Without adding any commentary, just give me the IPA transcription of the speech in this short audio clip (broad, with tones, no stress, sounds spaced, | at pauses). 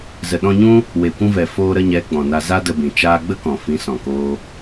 z ə˨ ɗ ɔ̃˧ ɲ ũ˦ | w e˨ kʷ ũ˧ v ɛ˨ f oː˧ ɾ ə˧ ɲ ɛ˨˦ ɡ͡b ɔ̃˨ n a˧ z a˦ d ə˧ b ĩ˨ t͡ʃ aː˧ ɡ͡b ə˦ k ɔ̃˨ f ĩ˨˦ s ɔ̃˨ k oː˦